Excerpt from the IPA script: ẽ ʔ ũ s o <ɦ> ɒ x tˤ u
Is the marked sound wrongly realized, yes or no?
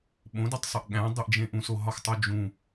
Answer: no